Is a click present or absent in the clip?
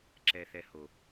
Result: present